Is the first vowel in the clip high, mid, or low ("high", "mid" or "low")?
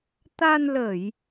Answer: low